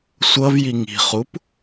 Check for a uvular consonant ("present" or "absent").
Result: present